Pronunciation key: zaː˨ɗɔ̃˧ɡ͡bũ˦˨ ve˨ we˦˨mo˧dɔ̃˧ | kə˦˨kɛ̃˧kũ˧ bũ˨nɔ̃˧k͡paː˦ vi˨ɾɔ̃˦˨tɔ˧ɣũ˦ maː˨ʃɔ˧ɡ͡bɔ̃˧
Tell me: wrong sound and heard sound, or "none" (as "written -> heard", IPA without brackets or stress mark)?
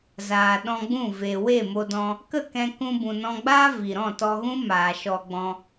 k͡p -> ɡ͡b